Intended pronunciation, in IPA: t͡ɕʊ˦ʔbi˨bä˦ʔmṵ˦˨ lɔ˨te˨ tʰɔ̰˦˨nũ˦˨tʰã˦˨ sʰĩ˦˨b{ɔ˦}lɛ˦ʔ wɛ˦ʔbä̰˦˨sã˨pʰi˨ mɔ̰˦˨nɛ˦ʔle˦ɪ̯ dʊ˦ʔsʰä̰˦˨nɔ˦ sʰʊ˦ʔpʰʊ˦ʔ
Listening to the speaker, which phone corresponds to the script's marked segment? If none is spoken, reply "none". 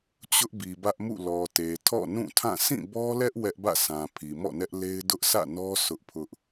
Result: ɔ˦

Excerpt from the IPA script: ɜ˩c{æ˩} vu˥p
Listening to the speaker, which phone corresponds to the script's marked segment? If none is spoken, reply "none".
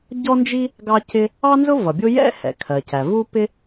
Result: æ˩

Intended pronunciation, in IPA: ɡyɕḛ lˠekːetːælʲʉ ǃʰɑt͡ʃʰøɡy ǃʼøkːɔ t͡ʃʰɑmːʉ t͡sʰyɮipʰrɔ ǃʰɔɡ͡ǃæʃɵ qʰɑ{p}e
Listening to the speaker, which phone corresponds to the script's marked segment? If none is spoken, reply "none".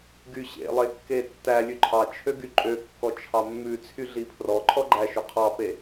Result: p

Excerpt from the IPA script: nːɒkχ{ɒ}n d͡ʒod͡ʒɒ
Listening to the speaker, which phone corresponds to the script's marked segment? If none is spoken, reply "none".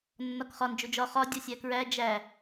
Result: ɒ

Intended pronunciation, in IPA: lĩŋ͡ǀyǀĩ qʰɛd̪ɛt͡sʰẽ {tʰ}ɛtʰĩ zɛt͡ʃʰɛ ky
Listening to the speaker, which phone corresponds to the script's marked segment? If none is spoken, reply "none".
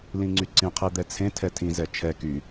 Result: tʰ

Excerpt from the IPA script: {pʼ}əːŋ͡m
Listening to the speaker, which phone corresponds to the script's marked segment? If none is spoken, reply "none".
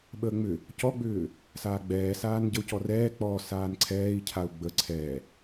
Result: ɓ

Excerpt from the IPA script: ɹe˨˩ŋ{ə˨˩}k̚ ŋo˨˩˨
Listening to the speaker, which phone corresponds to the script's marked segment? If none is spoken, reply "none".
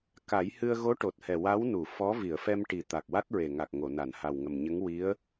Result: a˨˩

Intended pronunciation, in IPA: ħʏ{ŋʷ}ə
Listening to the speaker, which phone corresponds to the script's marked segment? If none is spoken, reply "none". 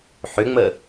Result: ŋ͡m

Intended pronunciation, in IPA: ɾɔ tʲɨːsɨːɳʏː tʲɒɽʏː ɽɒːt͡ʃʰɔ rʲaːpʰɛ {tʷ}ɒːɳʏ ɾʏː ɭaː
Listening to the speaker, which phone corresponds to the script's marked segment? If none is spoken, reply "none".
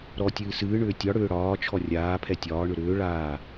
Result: tʲ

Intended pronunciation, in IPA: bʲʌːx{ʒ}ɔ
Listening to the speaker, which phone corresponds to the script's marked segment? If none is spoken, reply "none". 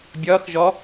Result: ʒ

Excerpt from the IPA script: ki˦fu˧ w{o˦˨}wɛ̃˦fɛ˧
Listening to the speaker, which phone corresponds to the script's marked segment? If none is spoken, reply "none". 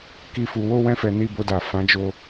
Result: o˦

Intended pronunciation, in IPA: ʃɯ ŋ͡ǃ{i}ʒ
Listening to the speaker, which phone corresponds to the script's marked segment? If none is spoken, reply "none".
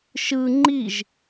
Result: i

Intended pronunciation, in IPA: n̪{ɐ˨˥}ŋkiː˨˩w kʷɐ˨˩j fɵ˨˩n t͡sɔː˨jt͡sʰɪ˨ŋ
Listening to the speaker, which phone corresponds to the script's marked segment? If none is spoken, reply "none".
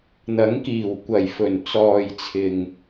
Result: ɐ˨˥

